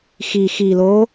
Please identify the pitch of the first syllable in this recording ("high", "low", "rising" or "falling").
low